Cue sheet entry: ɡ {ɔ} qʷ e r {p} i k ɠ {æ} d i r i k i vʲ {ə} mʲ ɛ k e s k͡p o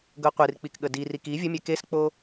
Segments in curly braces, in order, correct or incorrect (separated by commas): incorrect, incorrect, incorrect, correct